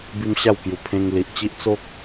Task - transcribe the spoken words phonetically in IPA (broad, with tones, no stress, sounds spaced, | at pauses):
b i˦ m ɕ a˥˧ w k j u˧ pʰ ẽ˧ ŋ l i˨ ʔ t͡ɕ i˦ ʔ t͡s o˦ k̚